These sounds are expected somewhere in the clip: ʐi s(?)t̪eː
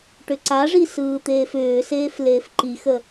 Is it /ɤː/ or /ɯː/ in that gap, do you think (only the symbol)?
ɯː